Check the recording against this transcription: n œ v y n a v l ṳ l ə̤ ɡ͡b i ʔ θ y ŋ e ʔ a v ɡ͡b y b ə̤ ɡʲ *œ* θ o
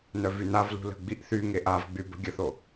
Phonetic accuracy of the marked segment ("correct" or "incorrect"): incorrect